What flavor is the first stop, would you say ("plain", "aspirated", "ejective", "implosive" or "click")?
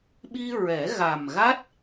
implosive